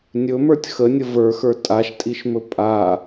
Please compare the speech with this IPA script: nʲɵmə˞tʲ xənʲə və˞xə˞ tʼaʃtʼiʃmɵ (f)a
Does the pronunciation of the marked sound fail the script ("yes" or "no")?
yes